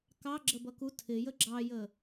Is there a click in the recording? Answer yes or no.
yes